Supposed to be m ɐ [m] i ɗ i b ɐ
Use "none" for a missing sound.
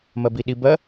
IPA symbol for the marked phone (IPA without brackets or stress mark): b